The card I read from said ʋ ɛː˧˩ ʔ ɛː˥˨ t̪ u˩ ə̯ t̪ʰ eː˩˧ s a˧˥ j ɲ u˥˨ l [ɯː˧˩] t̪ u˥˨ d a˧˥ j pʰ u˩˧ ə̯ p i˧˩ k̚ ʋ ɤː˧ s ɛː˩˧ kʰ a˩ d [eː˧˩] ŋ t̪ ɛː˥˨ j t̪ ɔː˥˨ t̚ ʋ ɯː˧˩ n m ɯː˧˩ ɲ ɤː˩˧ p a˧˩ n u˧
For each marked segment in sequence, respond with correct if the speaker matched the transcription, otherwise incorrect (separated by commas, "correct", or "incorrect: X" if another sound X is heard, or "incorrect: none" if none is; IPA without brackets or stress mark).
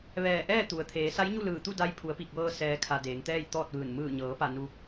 correct, incorrect: eː˩˧